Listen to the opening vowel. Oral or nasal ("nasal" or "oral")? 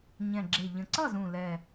nasal